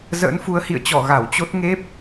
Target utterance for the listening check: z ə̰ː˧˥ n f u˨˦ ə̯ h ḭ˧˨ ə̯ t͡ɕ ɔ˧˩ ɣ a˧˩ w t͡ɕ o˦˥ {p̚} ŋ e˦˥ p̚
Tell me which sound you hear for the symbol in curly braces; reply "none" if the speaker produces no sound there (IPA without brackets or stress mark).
t̚